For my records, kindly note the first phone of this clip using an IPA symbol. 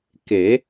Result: k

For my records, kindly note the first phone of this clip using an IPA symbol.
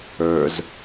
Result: ə˞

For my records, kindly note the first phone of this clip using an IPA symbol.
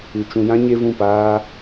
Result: ɨ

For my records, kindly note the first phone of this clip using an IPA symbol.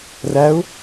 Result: r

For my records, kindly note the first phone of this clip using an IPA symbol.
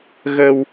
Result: ɣ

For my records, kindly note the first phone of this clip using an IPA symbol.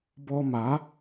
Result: b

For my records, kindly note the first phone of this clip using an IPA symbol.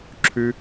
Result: ǁʰ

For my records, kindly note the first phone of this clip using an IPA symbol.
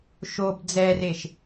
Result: ʃ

